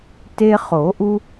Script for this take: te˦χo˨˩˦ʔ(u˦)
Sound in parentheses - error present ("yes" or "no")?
no